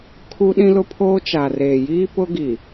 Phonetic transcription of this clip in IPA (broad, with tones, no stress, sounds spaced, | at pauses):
kʰ u˦ ɗ ĩ˦ l ʊ˦ pʰ oː˦ t͡ʃ a˨ r eː˨ j iː˦ p ʊ˦ ɡ i˨